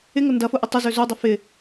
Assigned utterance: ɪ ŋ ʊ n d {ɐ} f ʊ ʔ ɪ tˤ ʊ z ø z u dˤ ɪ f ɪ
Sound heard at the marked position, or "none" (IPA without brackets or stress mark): ɐ